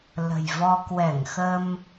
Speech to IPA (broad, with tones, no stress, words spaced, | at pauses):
lə̤˨˩jvɔ˧ kwɛ˧˩ŋxə˧m